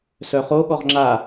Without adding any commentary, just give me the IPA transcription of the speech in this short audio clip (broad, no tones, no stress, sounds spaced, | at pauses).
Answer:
s œ χ o ɠ ɔ ʁ ŋ͡ǁ a